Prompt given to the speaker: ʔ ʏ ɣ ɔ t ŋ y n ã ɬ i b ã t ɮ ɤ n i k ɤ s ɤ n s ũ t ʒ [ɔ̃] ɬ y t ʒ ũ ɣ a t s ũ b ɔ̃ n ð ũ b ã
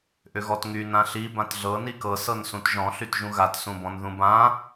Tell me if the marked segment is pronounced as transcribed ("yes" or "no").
yes